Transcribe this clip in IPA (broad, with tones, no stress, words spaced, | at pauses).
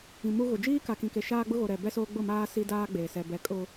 ĩ˨mu˦ɣʊ˨ d͡ʒiː˦ka˨kĩ˨ke˨ ʃaː˦ɡ͡bʊ˦ɣo˨ɾɛ˨ bɛ˦soː˦ ɡ͡bʊ˦˨maː˦ si˦daː˦ɡ͡beː˨ sɛ˨ bɛ˨ kʼʊ˦